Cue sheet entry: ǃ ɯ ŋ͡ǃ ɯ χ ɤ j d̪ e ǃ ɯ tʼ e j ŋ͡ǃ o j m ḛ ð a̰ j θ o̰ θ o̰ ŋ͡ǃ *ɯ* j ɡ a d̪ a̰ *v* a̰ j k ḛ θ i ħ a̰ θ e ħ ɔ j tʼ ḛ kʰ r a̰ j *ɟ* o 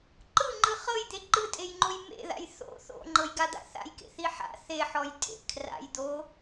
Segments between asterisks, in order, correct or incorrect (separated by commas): incorrect, incorrect, incorrect